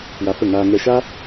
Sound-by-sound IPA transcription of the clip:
w a˧ f ə˦˨ ŋ aː˧ ŋ ɛ˧ ʃ a˦

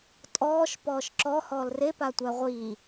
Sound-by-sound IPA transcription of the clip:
tʼ ɔː ʃ p ɔː ʃ ǁ ɔ h ɔː l r e p a tʷ æ ʁʷ iː

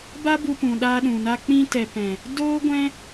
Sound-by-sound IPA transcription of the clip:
b a˦ b u˧ p ũ˨ ɗ aː˧ ɗ ũ˨ n a˧ k͡p ĩ˧ t ɛ˨ p ɛ̃˨ | d oː˦ ɡʷ ɛ̃˦

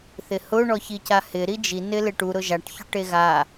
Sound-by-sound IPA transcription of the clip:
θ ɪ h ʊ ɳ ɔ ç i c a h ɪ ɾ i d͡ʒ i n ɪ l e ʈ u ɾ ʊ ʒ a ʈ ç ʊ ʈ e ɣ a

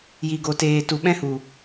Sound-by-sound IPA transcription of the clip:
j i˨ ɡ o˨ t eː˨ t u˨ ɓ ɛ̃˦ h u˨

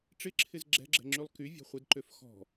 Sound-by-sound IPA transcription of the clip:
ʈ͡ʂ ɪ ǁʰ ɪ z ɡ͡ǁ ɛ̤ ɡ͡ǁ ɛ̤ ŋ͡ǁ y lˠ k y vʲ ɔ̤ χʷ ɪ d ǃ ø f x ɔ̤

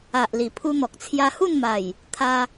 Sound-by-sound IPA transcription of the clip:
a˨ ʔ l i˨˩ pʰ u˧ n̪ ɔ˨ k̚ t͡sʰ j a˧ h u˥˧ n m a˨˩ j | t̪ʰ a˧

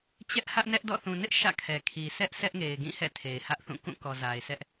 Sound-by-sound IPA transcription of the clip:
t͡ɕ ɛ˦ ʔ h ä˦ ʔ n ɛ˦ ʔ d ɔ̰˦˨ θ ũ˨ n ɪ˦ ʔ ʃ ä̰˦˨ kʰ ɛ˨ kʰ i˨ s ɛ˦ ʔ s ɛ˦ ʔ ŋ e˨ ɪ̯ ɡ ĩ˦˨ h ɛ̰˦˨ tʰ e˨ ɪ̯ h ä˦ ʔ θ ũ˦˨ k ũ˦˨ k ɔ˨ z a˨ ɪ̯ s ɛ˦ ʔ

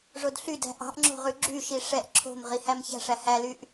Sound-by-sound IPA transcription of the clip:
ʐ o d ɬ y d æ̤ ʔ ɑ̤ ʔ ŋ͡ǁ o̤ ʁ ʉ ɡ͡ǁ y ʃ i ʂ ɛ ʔ ǁʰ o̤ m ʁ i h æ m ç æ̤ ʂ æ h æ l y ʔ

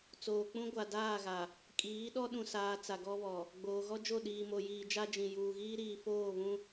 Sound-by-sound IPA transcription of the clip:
t͡s oː˨ k͡p ũ˦ ɡʷ a˨ d aː˦˨ ɣ a˨ | kʼ iː˨˦ ɗ ɔ˦ ɗ ũ˨ s aː˨ t͡s a˨ ɡ ɔ˦ β ɔ˨ | ɡ͡b oː˨ ɣ ɔ˦ d͡ʒ o˦˨ ɗ iː˨ m o˨ j iː˨ d͡ʒ a˦ d͡ʒ ĩ˨ j uː˨ ɣ iː˦ ɾ iː˨ f oː˦˨ β ũ˦

